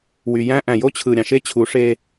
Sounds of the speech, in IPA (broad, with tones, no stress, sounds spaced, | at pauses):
w y˨ j æ̃˦ ʔ æ̃˨ j o˦ t͡ɕʰ ɯ˨ ɾʲ ɑ̃˨ ʃ e˦ t͡ɕʰ u˨˦ ʂ e˦